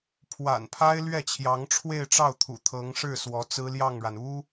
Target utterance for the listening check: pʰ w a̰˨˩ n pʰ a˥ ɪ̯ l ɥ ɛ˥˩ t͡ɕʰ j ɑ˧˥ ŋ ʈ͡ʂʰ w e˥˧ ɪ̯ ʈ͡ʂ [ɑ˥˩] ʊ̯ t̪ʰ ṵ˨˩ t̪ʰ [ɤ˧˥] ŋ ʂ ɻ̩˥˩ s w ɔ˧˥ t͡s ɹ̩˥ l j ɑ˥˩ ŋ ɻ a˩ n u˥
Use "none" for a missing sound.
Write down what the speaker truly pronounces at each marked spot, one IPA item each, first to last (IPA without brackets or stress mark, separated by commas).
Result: ɑ˥˩, ɤ˧˥